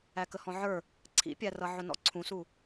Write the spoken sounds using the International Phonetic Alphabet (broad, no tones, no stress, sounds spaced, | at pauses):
æ k ə h ɔ̃ ʕ ə˞ | ǀʰ ḭ pʲ æ r ʌ ʕ ʊ n ɔ̰ ǀʰ ũ s u